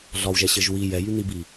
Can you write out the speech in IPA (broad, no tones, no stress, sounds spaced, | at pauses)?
ɮ ɒ w ʒ ɛ ɕ ɘ ʒ w i j ɛ j y n̪ i b i